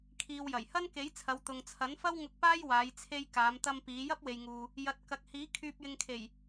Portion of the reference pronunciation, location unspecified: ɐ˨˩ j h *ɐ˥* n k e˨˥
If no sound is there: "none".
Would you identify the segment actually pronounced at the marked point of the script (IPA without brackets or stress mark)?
ɐ˥